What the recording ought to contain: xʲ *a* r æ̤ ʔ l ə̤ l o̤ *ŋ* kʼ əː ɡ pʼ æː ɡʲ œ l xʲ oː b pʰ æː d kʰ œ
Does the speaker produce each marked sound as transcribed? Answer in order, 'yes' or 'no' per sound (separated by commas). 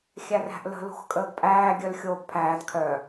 no, no